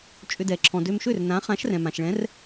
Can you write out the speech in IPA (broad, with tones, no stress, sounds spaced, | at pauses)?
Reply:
t͡ʃʼ ʏ˧ d ɛ˩ ǁʰ ɔ̃˩ d ø˧ m ʃ ø˥˩ r n ã˨˥ χ ã˨˥ ʃ r ɛ̃˩ m ã˩ ʃ ɭ ɛ̃˨˥ r